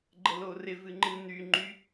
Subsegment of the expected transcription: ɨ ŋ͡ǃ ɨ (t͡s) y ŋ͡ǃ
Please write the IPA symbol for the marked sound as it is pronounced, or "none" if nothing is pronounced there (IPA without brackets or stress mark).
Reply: n̪